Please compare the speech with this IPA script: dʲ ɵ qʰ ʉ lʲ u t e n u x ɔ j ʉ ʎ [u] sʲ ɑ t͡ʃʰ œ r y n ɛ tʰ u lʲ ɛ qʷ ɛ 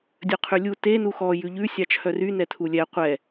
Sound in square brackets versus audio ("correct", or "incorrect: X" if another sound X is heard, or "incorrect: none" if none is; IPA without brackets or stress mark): incorrect: ʉ